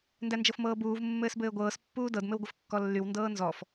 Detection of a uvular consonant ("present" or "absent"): absent